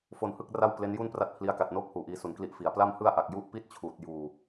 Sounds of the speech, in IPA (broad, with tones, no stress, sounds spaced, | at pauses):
f o˧ n h ɯ˥˩ k̚ r a˥˩ w p l e˦˥ n j u˥˩ n p r a˥˩ t̚ pʰ l i˦˥ a̯ k a˨˩ t̚ n oː˥˩ k̚ h uː˨˩ ʔ iː˧ s u˨˩ n k l i˦˥ ʔ f i˩˦ a̯ p l a˥˩ m h ɯ˥˩ a̯ ʔ a˨˩ k̚ j u˥˩ ʔ p i˥˩ t̚ t͡ɕʰ uː˨˩ t̚ j uː˧